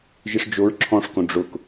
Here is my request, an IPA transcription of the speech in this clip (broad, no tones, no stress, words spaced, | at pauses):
ʒiʂd͡ʒoɹ ǁʰɔ̃ʂkõ ɖ͡ʐʊk